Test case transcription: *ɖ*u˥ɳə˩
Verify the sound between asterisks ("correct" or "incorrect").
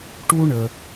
incorrect